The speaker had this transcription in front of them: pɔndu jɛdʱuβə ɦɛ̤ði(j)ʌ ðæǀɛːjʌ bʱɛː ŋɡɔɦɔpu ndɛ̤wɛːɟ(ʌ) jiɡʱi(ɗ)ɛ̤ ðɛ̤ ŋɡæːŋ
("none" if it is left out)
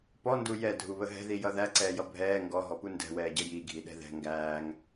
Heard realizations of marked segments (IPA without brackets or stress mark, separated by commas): j, ə, ɗ